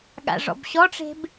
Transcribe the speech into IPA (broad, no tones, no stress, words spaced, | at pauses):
ɠa̰ʐɔ̰bɕɔʈ͡ʂe̤b